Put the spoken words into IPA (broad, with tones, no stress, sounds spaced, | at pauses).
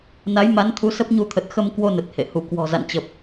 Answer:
n a˨˦ j m a˨˦ n t̪ʰ u˨˦ s ə˦˥ p̚ ɲ u˧ t̪ʰ ə˨˩ t̚ x ə˧ m k w o˧ n ə˨˩ t̚ h ḛ˧˨ h u˧˩ k w ɔ̤˨˩ z a̰˧˨ n t͡ɕ ə˨˩ p̚